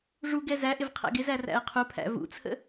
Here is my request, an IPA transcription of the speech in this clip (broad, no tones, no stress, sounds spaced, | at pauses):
ʐ u ɡ ɛ z æ ʔ ɪ v qʰ æ̰ ɡ ɪ z æ r æ̰ ə̯ qʰ u pʰ æ̰ v ṵ t͡sʰ ə̰